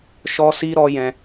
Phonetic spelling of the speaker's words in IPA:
ʃ ɔ˧ s i˧ ɾ ɔ˦ j ɛ̃˧

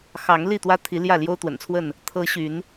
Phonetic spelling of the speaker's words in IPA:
x ɑ˨˦ ŋ l i˥˨ t̪ w ä˦ t̪ʰ i˨˦ l j ä˥˨ l j o˦ ʊ̯ t̪ w ə̰˨˩ n t͡sʰ w ə˥˨ n | t̪ʰ ɤ˨˦ ɕ y˨˦ n

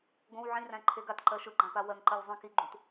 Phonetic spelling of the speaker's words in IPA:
ɡ õ w ʕ ĩ r æ̃ ǃʰ e ɡ a t ǃ ɜ ʃ ɯ ɡ͡ǃ ã p a w ɜ ŋ ǃ ɜ lʲ zˤ ĩ k i ɡ͡ǃ ũ t

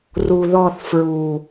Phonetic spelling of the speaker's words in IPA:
r u˨ ð ɔ˦˨ θ f ɹ u˨

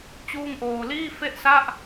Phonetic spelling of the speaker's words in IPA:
t͡ɕ uː˥˩ ŋ ʔ oː˧ l iː˥˩ f e˥˩ ʔ s a˥˩ ʔ

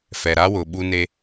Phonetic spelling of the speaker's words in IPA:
f ɛ˨ ɾ a˦ w ʊ˨ ɓ u˦ n e˦

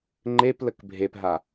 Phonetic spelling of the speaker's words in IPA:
ŋ͡ǃ e p l ə k bʱ e p ɦ a

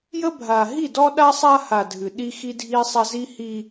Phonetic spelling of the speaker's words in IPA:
j ə˦ bʱ a˨ ɦ i˦˨ d ɔ˦ ɗ a˦ sˤ a˦ h a˨ dʱ ɨ˨ ɗ i˦ x i˦ dʱ i˦ sˤ a˦ z i˦ h i˦

